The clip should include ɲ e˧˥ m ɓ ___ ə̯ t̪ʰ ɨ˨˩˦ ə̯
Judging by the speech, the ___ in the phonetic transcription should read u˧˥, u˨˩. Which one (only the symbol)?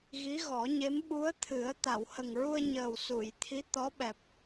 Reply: u˧˥